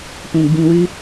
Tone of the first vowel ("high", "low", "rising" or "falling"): low